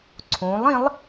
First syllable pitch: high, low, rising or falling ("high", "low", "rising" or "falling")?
rising